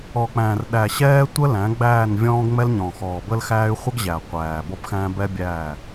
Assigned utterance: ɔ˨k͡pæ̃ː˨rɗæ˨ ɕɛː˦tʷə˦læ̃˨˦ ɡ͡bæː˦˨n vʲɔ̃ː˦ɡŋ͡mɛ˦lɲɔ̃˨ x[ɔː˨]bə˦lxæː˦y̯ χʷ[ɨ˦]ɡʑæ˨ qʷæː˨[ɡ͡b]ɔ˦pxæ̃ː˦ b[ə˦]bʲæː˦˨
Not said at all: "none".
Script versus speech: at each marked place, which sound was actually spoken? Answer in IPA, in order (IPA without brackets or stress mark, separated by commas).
ɔː˨, ə˦, b, ɛ˦